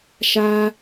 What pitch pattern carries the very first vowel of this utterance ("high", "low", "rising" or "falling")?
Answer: high